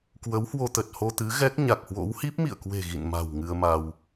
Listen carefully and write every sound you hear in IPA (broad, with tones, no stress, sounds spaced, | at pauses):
k w ə˨˦ w h w o˧ t̪ ə˨˩ t̚ h o˧ t̪ ɨ˨˦ ɣ ɛ˦˥ k̚ ɲ a˨˩ k̚ h w o̰˧˥ w h i˦˥ p̚ m ḭ˧˨ ə̯ k w e̤˨˩ ɣ ḭ˧˨ n m a̤˨˩ w ŋ ɨ˧ ə̯ m a˧ w